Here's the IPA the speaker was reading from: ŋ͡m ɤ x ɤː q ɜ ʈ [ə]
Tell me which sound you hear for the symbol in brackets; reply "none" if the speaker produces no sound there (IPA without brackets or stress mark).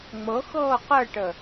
ə